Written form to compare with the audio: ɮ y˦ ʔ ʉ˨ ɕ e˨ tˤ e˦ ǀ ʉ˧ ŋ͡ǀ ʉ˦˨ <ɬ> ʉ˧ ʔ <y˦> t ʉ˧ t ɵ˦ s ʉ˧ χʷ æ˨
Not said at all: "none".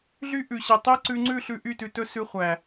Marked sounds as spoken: ɬ, y˦˨

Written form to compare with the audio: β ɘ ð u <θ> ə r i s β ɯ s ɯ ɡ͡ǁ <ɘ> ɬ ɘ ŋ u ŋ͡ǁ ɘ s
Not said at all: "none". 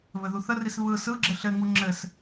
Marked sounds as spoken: θ, ɘ

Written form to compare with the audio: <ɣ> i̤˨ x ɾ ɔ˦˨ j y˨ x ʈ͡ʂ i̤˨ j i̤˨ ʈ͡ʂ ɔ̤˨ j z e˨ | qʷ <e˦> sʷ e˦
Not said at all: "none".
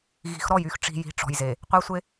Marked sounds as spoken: ɣ, e˦

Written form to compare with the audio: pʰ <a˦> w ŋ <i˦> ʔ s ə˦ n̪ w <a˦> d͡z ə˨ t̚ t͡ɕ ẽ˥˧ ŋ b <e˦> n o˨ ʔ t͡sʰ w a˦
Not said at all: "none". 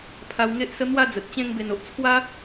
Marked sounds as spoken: a˧, e˦, a˥˧, e˨˩

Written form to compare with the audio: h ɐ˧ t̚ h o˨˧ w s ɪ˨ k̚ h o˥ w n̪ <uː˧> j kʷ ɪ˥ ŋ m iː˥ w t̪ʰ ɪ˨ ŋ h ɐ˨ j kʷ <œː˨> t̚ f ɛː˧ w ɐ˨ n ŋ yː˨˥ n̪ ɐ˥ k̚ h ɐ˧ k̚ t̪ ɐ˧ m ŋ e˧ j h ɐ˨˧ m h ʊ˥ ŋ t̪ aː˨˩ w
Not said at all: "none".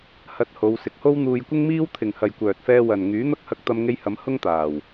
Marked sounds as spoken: uː˧, œː˨

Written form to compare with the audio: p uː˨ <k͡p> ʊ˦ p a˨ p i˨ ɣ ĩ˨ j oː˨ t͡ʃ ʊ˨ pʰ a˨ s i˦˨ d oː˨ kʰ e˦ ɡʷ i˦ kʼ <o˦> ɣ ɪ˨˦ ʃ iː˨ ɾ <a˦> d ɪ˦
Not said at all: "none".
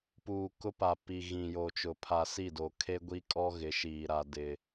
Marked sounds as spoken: k, ɔ˦, a˦

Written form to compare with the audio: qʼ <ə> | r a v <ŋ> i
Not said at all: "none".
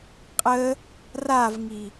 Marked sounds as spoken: ə, ŋ

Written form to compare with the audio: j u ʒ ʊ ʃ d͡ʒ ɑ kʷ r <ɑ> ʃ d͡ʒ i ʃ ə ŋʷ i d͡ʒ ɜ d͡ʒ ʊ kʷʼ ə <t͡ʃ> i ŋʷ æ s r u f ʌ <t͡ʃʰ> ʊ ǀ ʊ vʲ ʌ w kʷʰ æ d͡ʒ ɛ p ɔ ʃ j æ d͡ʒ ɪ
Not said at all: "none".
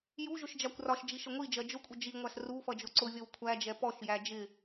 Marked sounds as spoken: ɒ, d͡ʒ, d͡ʒ

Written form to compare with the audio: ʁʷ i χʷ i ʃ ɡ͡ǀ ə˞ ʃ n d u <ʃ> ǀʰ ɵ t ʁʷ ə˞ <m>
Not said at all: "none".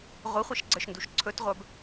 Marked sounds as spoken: ʃ, b

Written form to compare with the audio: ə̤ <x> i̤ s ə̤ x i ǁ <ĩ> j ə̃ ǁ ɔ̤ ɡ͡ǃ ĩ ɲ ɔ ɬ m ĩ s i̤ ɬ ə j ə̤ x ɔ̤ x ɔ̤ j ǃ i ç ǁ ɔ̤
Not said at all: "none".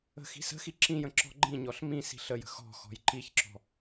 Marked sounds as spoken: x, ĩ

